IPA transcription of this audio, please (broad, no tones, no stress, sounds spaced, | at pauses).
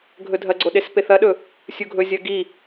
ɡʱ ɵ dʱ ɐ ɡ͡ǀ o ɗ e s p e θ ɐ ɗ ɵ | sʲ u ɡʱ ɵ zʲ ɐ ɡ i